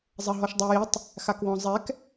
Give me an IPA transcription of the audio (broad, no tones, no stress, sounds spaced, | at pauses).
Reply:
zˤ ɐ ɦ ɔ ʃ dˤ ɛ j i tˤ | x a k w ɔ̃ zˤ ɛ k